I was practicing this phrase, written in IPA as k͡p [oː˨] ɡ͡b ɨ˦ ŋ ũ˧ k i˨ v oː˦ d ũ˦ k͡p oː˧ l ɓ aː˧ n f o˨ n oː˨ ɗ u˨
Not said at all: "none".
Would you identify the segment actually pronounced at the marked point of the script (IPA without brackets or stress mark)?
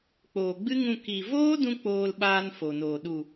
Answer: oː˨